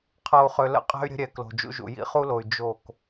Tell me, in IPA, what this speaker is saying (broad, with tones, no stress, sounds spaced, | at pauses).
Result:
qʰ ɤ˨ u̯ χ ø˨ l ə̰˦˨ qʼ ɛ̤˦ y̯ ɾʲ ə̤˦ ɾʲ ɛ˨ k l o̤˨ d͡ʒ ṵ˦ ʒ ṵ˨ j ḭ˦ χ u˦ l o˨ y̯ d͡ʒ o˦˨ k